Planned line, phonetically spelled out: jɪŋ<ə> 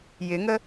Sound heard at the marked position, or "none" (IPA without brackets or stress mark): ə